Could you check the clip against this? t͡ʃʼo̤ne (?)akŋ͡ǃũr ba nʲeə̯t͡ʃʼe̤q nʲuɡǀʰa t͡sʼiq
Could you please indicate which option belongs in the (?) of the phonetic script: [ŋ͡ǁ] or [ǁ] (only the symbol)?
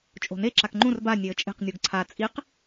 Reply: ǁ